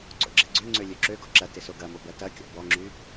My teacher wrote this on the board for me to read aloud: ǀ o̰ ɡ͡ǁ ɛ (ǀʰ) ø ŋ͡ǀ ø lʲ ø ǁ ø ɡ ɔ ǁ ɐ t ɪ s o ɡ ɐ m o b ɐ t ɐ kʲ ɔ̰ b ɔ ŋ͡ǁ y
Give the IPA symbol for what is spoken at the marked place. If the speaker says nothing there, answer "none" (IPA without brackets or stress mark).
ɡ͡ǀ